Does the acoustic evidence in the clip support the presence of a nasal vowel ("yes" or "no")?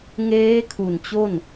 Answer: no